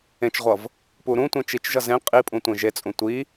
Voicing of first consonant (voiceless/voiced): voiceless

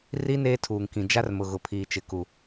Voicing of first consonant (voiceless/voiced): voiced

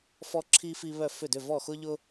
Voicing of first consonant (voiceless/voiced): voiceless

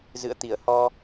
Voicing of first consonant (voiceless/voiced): voiced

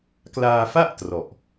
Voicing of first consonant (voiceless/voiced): voiceless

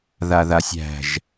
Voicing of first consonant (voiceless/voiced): voiced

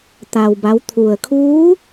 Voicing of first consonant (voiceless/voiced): voiceless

